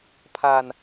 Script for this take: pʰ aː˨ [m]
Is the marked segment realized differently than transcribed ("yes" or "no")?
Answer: yes